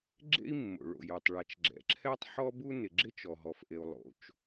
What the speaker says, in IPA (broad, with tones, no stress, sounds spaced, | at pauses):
ɡ͡ǁ ḛ˥ i̯ mː o̰˩ ɭ o̰˩ j o˩ tˤ ɭ a˩ t͡ʃ ɡ͡ǁ ɛ̰˩ ǁʰ ɛ˥ tˤ ħ ɔ˥ b u˥ n ɪ˩ ɡ͡ǁ ɪ˥ t͡ʃ ɔ˩ ɦ ɔ˩ f ʔ e˩ u̯ lˠ o̰˩ t͡ʃ